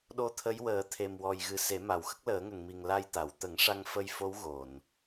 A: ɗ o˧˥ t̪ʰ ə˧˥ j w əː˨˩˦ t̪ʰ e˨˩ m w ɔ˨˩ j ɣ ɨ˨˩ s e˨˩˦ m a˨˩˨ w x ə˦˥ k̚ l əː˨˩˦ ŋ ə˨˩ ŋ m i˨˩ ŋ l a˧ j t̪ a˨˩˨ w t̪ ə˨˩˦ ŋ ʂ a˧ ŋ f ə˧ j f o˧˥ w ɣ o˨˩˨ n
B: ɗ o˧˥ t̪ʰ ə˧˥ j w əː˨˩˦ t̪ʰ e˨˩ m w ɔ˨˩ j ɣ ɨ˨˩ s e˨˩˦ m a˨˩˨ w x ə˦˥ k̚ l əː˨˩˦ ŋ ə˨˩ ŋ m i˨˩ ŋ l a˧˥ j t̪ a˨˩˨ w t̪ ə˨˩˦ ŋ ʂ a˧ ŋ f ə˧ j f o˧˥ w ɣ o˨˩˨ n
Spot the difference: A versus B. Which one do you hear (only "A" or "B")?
A